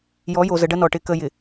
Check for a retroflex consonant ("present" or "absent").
present